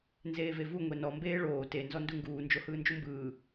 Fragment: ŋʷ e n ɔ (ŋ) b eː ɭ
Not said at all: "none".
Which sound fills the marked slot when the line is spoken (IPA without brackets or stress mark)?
m